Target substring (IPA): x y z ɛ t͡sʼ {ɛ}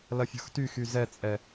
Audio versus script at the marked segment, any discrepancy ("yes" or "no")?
no